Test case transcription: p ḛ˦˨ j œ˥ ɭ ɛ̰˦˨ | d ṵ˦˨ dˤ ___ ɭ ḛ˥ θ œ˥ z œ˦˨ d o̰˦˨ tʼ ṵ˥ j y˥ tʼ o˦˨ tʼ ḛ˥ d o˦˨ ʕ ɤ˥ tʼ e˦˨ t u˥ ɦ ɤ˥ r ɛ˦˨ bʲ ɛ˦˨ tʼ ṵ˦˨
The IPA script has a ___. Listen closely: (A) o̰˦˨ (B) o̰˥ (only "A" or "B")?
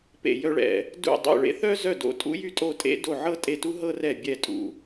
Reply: A